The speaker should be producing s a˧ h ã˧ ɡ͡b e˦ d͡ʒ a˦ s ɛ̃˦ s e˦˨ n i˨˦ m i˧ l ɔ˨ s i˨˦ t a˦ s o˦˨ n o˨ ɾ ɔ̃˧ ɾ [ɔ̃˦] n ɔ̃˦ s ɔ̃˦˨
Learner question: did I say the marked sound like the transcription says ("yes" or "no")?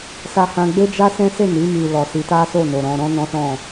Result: yes